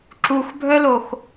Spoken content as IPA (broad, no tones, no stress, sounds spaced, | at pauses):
ǁ u x bʱ œ l o x